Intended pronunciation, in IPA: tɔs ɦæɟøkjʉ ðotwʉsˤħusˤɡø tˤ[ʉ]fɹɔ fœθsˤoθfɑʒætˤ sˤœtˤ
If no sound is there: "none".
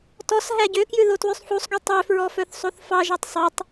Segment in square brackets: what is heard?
ø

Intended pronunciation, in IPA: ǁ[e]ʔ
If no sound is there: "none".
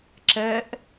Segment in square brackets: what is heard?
ɛ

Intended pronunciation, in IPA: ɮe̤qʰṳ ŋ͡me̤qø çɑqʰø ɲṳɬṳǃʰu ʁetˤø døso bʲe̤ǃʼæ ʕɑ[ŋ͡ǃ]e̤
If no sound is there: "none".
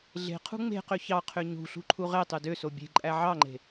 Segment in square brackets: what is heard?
ŋ͡ǃ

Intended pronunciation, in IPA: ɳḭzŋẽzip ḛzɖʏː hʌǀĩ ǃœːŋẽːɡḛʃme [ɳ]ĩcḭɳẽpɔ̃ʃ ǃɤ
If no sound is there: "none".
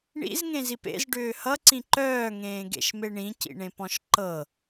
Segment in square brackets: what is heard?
ɳ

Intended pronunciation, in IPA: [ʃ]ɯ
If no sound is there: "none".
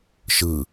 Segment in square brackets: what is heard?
ʃ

